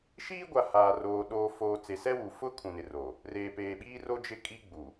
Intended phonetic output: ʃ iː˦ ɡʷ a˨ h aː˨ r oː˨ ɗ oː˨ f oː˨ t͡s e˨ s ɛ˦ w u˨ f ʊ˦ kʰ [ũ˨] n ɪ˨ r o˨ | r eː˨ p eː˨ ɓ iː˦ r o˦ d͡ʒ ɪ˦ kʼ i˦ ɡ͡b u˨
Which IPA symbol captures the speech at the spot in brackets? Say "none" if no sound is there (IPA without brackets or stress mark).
ũ˨